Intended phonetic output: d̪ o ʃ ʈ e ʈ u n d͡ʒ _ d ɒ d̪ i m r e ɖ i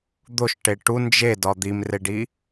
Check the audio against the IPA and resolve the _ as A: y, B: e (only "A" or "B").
B